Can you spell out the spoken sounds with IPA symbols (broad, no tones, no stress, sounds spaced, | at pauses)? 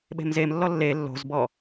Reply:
ɓ e̤ m z e m lː ɔ lː e lː o̤ z b ɔ